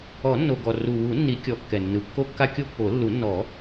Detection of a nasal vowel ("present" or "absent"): absent